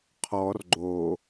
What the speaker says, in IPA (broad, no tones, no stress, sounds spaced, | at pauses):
qʰ ɔ r ɡ͡ǃ o